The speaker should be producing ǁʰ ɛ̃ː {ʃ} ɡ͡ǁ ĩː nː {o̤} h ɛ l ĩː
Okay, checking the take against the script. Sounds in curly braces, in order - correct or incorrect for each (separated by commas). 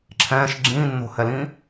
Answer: correct, correct